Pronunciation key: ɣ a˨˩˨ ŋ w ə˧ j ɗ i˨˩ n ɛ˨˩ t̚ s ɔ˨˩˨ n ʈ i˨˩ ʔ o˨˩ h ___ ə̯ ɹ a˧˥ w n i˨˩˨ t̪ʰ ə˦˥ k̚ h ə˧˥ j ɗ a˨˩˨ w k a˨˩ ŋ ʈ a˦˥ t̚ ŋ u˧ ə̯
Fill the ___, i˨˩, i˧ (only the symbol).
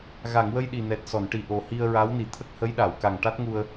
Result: i˧